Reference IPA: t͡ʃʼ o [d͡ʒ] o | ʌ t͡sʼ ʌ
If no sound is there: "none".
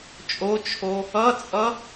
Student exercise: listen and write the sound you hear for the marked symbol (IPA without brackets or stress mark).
t͡ʃʰ